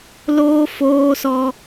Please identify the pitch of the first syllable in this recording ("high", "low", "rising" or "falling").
high